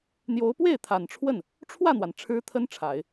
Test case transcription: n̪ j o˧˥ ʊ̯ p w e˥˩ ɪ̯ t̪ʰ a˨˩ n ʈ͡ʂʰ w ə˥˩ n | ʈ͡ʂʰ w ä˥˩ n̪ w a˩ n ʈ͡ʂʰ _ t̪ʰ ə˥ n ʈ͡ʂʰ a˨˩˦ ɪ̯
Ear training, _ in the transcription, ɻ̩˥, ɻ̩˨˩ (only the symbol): ɻ̩˥